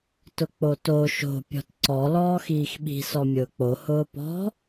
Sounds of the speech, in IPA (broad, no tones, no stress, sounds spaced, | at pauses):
t ʊ k͡p o t o ʃ o̤ pʲ ɔ̤ t ǀ ɔ l ɔː x iː x ɓ i̤ s ɔ mʲ ʊː k͡p o h ʊː p ɔ̤